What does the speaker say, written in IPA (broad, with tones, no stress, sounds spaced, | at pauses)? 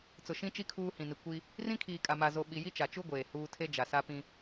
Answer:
t͡s ʊ˨ ʃ ĩ˦ t͡ʃ i˦ kʰ uː˦ h ĩ˨ n i˨ kʷ i˦ | r ĩ˦ kʰ iː˨ kʼ a˨ m a˨ z o˨ ɓ i˨ j i˦ t͡ʃ a˨ t͡ʃ u˦ ɡʷ eː˨ h uː˦ tʰ e˦ d͡ʒ a˨ s a˦ p ĩ˦